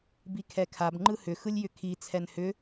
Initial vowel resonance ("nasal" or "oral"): oral